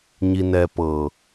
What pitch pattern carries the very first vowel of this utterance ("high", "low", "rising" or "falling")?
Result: low